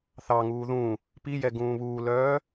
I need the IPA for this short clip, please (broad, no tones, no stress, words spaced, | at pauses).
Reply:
θɑŋuː ðũ | pijɛ ɡũːβuːlœː